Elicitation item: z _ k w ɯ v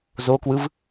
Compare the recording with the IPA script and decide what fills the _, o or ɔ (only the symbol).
o